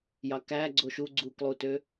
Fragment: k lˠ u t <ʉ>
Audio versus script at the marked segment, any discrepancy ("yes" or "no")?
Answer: yes